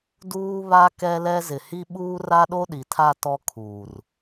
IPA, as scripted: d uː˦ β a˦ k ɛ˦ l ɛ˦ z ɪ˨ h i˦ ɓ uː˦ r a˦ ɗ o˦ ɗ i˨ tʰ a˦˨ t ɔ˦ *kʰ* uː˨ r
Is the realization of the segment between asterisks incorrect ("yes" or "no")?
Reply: no